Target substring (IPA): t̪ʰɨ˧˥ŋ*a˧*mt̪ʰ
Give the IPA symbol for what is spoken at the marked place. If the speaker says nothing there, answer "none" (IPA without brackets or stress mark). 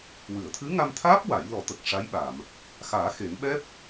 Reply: a˧